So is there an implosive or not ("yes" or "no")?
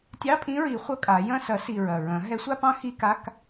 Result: no